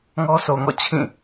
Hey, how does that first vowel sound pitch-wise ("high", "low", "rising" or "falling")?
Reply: high